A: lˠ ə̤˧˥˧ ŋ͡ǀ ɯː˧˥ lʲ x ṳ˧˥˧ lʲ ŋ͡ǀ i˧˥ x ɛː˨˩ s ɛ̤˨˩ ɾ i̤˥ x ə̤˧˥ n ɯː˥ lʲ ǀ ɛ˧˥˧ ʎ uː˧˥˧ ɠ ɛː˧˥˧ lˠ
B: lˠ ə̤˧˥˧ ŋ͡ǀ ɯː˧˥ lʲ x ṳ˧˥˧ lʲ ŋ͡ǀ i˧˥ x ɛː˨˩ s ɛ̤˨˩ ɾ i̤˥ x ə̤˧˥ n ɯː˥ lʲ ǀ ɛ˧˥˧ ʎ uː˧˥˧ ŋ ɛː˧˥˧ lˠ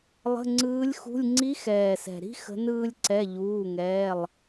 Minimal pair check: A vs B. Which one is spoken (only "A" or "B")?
B